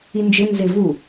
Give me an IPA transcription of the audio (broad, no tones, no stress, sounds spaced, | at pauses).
i n d͡ʒ ɪ n z ɪ v u